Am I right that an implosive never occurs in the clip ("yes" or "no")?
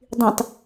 yes